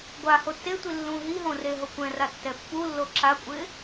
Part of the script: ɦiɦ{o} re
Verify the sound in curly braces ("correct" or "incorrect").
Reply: incorrect